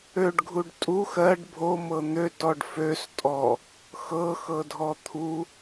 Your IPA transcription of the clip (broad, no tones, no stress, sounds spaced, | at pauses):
ø ɖ ɡʱ u ɖ tʼ u x ɜ ɖ bʱ o m ɤ n̪ ø t ɔ ɖ f ø s tʼ ɔ | x ɤ x ɤ dʱ ɔ t̪ʰ u